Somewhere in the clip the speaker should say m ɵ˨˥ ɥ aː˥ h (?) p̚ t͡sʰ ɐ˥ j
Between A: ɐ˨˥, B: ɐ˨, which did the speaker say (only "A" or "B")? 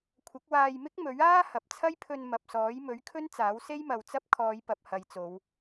B